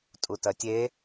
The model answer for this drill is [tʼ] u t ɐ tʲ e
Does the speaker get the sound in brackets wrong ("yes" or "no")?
no